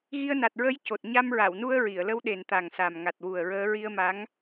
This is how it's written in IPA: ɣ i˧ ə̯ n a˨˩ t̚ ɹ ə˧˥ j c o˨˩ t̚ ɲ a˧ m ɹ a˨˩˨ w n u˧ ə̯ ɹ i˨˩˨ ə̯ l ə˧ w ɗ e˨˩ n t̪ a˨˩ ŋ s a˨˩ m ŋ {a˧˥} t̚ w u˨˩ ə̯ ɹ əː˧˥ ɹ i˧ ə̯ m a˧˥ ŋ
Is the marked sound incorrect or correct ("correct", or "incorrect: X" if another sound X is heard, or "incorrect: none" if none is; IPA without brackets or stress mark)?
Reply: incorrect: a˨˩